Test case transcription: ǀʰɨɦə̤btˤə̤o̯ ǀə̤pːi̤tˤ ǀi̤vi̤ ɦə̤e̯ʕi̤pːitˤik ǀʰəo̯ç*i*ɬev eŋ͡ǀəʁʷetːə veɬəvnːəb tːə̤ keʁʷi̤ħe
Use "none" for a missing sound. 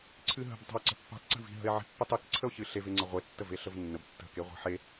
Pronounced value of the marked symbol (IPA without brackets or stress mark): ɨ